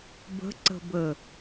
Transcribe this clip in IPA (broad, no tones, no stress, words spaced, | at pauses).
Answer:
bə̤ǀə̤bə